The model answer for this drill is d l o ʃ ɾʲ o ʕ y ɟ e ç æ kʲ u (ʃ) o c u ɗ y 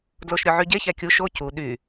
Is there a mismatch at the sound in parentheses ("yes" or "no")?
no